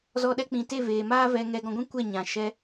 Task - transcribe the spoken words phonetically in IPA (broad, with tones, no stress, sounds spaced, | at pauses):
z ɔ˧ ɗ ɛ˧ k͡p ĩ˨ t e˦˨ v eː˨ m aː˦ v ɛ˧ ŋ ɛ˧ ɡ ɔ̃˧ ɡʷ ĩ˦ kʷ ɛ˦˨ ɲ ã˨ ʃ ɛ˧